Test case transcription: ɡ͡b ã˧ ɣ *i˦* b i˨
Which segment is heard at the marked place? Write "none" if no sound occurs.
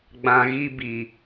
i˦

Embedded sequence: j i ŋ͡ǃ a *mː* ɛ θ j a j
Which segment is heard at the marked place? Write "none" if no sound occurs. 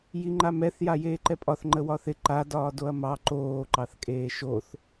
m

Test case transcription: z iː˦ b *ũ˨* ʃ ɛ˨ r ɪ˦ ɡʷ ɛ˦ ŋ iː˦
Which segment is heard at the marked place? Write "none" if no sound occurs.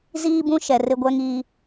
ũ˦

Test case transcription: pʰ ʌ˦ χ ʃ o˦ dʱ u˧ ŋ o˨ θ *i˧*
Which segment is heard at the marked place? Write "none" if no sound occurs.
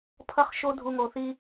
i˧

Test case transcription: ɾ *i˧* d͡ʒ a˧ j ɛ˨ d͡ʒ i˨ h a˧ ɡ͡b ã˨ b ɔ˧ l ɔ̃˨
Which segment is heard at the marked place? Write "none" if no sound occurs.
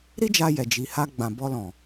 i˦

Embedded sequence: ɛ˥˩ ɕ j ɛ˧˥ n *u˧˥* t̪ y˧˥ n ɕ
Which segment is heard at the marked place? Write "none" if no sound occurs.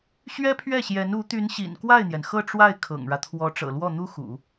u˧˥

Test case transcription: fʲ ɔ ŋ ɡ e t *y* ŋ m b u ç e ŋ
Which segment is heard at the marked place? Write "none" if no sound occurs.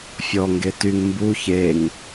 y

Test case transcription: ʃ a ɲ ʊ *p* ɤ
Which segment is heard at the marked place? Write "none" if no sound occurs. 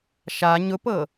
p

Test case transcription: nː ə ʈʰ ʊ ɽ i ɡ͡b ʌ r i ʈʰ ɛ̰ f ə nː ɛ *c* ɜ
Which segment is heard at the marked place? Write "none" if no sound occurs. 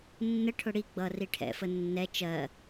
t͡ʃ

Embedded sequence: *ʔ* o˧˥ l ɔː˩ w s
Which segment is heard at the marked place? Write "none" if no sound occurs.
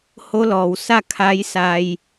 h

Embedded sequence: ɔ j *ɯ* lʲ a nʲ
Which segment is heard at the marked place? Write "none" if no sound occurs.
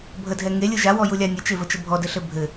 u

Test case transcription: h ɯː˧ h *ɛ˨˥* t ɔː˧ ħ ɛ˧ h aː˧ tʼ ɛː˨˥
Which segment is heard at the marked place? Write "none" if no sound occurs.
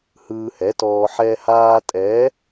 ɛ˨˥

